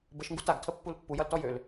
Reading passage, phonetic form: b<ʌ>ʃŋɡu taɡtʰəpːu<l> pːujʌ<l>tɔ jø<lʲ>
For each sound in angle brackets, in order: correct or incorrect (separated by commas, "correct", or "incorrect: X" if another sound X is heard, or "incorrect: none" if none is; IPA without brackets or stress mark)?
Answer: incorrect: ə, correct, correct, incorrect: l